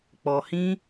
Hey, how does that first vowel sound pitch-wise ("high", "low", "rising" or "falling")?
low